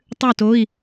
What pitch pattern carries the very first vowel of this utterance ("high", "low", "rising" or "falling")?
falling